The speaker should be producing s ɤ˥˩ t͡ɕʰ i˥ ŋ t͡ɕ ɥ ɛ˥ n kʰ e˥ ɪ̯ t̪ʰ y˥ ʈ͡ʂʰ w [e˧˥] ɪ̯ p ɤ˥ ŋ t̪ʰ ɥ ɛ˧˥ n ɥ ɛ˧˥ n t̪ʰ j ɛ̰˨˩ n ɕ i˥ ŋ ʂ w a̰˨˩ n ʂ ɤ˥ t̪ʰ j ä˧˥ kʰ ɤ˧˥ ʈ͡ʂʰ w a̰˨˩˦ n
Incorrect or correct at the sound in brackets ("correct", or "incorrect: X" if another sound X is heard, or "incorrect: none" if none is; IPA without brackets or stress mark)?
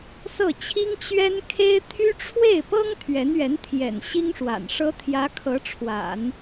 incorrect: e˥˩